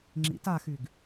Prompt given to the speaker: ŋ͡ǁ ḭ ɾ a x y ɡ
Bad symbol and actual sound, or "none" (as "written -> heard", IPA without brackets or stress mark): ɾ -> t